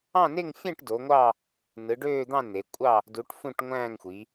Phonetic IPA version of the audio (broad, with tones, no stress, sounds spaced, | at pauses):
ɑ̃˥˧ n e˥˧ ŋ fʲ æ̃˥˧ ʈ d o˨˦ ŋʷ ɑ˥˧ | n ɯ˨˦ ɖ øː˥˧ d̪ ɑ̃˥˧ n e˨˦ kʷʼ ɑ˥˧ | d u˨˦ ʈ f ũ˥˧ ʈ ŋʷ æ̃ː˥˧ ŋ xʷ i˨˦